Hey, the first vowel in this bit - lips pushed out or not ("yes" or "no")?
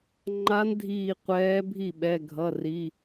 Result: no